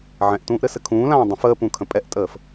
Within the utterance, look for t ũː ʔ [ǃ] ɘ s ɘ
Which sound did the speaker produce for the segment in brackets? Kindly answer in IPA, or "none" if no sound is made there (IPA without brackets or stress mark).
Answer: ɾ